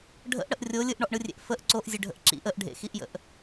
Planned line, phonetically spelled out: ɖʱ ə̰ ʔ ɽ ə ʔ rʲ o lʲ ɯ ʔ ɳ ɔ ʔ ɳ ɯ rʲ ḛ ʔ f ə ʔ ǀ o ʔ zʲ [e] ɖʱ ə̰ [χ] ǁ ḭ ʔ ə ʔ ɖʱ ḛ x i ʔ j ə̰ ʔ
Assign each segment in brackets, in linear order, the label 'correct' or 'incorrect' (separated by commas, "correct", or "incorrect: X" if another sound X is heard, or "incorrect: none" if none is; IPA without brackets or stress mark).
correct, incorrect: ʔ